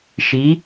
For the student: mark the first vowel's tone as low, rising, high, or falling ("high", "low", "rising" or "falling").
rising